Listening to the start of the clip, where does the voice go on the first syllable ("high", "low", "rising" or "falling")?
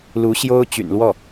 rising